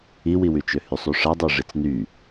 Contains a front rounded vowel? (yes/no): yes